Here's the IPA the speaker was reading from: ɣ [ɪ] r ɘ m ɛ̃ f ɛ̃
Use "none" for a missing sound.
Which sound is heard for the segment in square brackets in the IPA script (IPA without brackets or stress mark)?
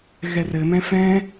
ɛ